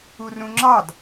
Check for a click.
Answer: present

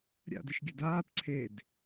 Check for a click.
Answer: present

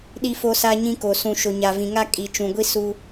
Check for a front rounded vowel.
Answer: absent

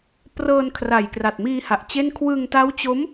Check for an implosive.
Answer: absent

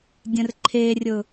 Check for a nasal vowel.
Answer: present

